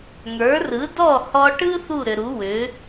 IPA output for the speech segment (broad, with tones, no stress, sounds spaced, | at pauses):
ŋ ə˞˩˥ r ɯ˩˥ d ɔ˥˩ h ɔ˧ ʈ ɯ˥ θ u˥˩ ɾ ʏ˩ ɾ u˩˥ w ʏ˩˥